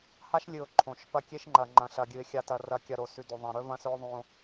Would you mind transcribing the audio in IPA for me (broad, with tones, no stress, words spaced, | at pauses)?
ha˦ʃlʲɨ˨ʊ̯ ǃʰõ˨ʃ pɐ˦kʲe˦ʃŋ͡ǃɐ˨ ŋ͡ǃɐ̃˨ɬɐ˨ɡʲɨ˨ɪ̯ xʲa˨tɐ˨rɐ˨ kʲɐ˨ɾo˨sʉ˨ do˨ðˤã˨ɾɵ˦ vɐ̃˦sɵ˦ʊ̯ ðˤõ˦